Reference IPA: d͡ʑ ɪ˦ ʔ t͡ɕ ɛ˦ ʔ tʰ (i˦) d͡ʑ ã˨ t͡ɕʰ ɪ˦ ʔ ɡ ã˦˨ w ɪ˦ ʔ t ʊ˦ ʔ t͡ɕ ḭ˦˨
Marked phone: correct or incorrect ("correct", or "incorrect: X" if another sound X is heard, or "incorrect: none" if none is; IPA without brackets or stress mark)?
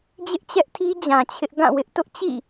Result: correct